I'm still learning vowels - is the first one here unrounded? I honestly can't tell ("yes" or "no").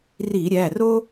yes